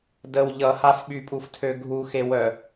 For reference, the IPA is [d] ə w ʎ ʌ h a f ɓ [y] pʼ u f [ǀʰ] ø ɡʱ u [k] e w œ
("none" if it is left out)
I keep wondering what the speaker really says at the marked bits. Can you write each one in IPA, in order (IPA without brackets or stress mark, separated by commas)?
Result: d, y, tʰ, x